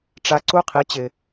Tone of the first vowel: high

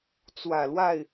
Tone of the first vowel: low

